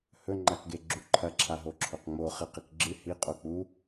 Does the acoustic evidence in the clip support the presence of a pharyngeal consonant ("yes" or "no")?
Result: no